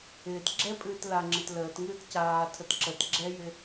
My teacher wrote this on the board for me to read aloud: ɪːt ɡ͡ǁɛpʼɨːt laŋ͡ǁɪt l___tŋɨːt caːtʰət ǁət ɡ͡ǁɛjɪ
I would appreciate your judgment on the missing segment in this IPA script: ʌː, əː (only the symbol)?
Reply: əː